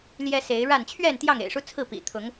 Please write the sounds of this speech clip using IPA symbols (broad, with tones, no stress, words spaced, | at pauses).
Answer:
ljɛ˦se˨˦ɪ̯ɻa˥˨n t͡ɕʰɥɛ˥˨nt̪jɑ˥˨ŋ ḛ˨˩ɪ̯ʂu˦t͡sʰɹ̩˥˨pḭ˨˩ t̪ʰʊ˨˦ŋ